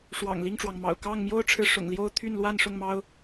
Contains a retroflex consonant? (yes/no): yes